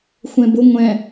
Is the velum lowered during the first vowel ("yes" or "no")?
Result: yes